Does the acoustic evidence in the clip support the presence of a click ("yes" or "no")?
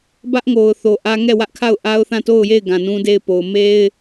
no